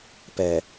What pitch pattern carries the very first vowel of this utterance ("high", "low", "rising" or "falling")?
low